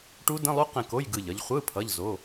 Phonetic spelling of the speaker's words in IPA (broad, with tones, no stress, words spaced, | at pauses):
ʈu˦˥ də̃˧˥˧lˠu˦˥ qẽ˦˨ko˧˥˧j ɡɯ˦˨ʎʌ˦˥ʎ χʷɯ˧˥˧ pʰʌ˧˥˧ʎzo˧˥˧